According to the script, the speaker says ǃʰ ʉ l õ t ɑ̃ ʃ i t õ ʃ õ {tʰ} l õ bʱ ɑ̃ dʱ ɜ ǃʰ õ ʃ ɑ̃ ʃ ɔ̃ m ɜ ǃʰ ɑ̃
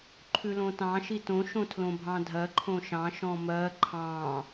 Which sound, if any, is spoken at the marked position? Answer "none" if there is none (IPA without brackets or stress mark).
tʰ